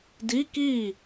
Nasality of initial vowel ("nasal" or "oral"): oral